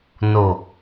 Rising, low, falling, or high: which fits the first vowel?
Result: low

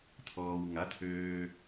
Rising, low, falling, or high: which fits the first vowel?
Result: low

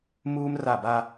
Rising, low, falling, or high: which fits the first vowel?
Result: high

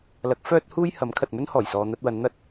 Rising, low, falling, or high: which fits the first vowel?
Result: rising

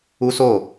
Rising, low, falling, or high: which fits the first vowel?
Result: high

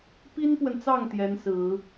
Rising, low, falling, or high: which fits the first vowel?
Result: high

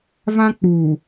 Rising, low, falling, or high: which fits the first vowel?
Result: high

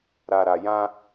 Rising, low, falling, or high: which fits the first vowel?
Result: low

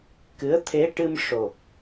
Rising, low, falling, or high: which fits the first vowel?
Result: rising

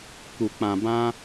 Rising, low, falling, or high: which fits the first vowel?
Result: low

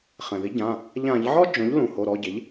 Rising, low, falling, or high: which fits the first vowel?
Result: low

